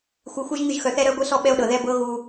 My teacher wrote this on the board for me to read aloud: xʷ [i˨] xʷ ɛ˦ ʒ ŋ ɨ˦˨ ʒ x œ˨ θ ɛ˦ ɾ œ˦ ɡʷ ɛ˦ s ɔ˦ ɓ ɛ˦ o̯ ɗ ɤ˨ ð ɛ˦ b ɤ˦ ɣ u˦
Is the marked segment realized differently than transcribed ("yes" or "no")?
yes